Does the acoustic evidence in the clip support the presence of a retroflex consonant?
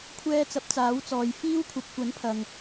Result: no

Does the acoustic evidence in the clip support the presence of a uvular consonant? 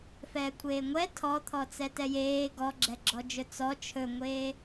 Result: no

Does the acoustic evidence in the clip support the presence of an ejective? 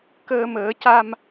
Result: no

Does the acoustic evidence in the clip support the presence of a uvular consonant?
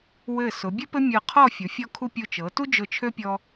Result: yes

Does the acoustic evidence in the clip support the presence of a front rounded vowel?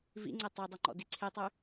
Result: yes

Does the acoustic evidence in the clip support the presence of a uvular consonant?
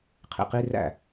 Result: yes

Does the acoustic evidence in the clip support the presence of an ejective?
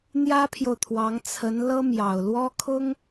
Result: no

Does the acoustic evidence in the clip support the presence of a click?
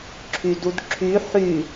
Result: yes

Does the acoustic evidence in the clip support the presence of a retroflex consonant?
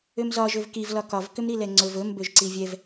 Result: no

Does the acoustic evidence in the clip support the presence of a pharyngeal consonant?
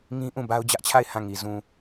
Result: no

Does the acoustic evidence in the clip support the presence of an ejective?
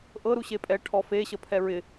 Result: yes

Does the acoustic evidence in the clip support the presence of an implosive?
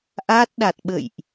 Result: yes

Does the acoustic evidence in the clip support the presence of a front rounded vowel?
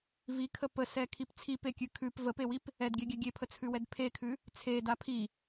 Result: no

